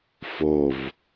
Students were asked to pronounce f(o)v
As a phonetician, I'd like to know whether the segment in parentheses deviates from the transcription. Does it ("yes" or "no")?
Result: no